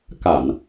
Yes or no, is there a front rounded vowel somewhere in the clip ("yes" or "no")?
no